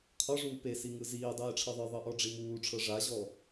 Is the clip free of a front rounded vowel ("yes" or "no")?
yes